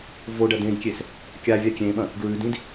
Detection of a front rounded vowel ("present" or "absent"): absent